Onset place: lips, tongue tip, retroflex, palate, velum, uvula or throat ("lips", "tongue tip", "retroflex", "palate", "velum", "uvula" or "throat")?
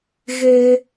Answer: velum